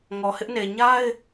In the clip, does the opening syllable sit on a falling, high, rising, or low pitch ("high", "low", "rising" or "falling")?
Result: low